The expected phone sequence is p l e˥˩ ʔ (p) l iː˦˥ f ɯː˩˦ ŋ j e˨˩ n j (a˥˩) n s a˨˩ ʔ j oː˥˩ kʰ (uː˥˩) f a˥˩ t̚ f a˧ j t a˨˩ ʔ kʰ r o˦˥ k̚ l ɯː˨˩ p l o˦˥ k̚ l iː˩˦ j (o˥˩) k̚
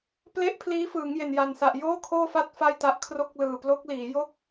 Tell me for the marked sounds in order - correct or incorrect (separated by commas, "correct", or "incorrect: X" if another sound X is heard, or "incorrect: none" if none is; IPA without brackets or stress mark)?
incorrect: pʰ, incorrect: a˨˩, incorrect: oː˥˩, correct